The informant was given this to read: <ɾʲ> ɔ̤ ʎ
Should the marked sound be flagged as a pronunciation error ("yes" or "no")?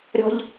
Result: no